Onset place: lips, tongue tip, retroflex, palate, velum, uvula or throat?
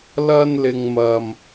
tongue tip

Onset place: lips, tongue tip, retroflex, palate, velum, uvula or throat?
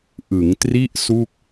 throat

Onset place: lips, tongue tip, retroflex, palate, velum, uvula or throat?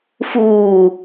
lips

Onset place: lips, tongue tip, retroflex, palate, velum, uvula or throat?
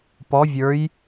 lips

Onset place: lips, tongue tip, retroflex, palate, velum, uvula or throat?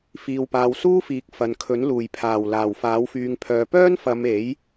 lips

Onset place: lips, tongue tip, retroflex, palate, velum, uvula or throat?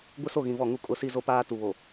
velum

